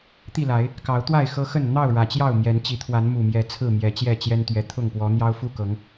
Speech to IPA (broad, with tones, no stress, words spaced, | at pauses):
t̪i˥˨la˨˦ɪ̯ | kɑ˨˦ʊ̯t̪wa˥˨ɪ̯ xɤ˦xə˥˨n n̪ɑ˥˨ʊ̯ ɻä˨˩t͡ɕjɑ˥˨ʊ̯ mjɛ˨˦n t͡ɕi˨˦t̪ʰwa˨˦n mu˨˩mjɛ˨˦ t͡sʰɹ̩˥˨mjɛ˨˦t͡ɕjɛ˥˨t͡ɕjɛ˦n t̪ɥɛ˨˩t̪ʰʊ˥˨ŋpwɔ˨˦ n̪jɑ˦ʊ̯ fu˥˨kɤ˨˦ŋ